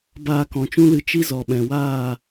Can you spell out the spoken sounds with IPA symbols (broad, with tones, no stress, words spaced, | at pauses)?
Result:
baː˧kɔ̃˨t͡ʃũ˦lɨ˧ t͡ʃi˦zɔ˨ɓɛ̃˨waː˦˨